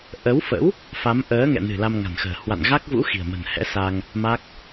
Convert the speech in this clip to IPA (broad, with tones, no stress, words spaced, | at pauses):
ʔə˨˦wfə̰˧˥w | fa˨˦m ʔəː˨˦ŋɛ̰˧˨nɨ̤˨˩ la˧mŋa̤˨˩nxə̤ː˨˩ hwa̰˧˨nɣa˦˥k̚vṵ˧˥ xi̤˨˩ə̯mə̤˨˩nhɛ̰˧˥ sa˧ŋ | ma˦˥k̚